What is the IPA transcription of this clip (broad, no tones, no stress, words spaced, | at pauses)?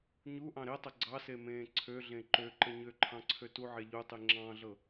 ɲu ʔɑ̃ɾetˤə ɡ͡ǀɑse mẽːǀʰøɮẽ ǃøǃə ɲøǃʰɑ̃ ǀʰøtuʕɛ ʎutˤi ŋ͡ǁɑ̃ɮɤ